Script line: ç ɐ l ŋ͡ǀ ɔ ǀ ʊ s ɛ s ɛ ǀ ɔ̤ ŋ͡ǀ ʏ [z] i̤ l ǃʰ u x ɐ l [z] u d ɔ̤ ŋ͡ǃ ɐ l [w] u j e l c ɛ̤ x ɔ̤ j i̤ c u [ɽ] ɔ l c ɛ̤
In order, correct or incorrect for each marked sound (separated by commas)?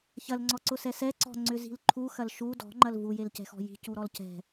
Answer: correct, incorrect, incorrect, incorrect